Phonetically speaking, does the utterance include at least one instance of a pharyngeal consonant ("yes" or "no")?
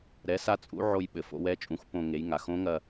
yes